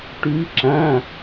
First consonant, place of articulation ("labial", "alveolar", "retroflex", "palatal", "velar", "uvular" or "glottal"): retroflex